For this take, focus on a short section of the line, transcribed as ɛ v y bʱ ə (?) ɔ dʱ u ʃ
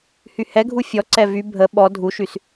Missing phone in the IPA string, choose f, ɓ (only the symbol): ɓ